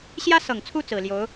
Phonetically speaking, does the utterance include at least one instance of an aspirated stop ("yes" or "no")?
yes